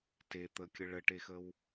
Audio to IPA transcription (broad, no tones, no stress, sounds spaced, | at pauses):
t e t̪ ə kʲ ə ɭ ə ʈ e x ə w